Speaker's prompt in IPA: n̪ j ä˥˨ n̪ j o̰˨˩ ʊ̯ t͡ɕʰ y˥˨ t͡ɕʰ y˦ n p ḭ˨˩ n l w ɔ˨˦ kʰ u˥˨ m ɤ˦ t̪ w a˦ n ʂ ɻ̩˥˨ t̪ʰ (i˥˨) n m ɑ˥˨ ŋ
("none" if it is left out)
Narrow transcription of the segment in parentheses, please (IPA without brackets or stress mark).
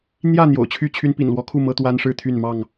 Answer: y˥˨